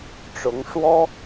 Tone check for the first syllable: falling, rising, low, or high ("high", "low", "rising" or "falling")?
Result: rising